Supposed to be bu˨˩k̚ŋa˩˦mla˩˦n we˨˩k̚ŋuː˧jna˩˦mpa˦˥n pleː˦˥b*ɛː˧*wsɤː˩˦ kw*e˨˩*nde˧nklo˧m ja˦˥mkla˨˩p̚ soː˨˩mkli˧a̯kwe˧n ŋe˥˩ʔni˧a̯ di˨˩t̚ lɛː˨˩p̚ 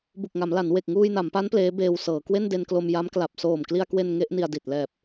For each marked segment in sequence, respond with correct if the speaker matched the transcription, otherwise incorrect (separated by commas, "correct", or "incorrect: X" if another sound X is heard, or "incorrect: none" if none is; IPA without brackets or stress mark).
incorrect: eː˧, incorrect: e˥˩